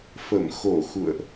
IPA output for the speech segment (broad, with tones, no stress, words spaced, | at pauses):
fə˧˩mxo˧˩ xṵ˧˨ə̯ʔ